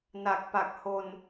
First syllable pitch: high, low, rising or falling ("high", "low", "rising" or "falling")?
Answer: low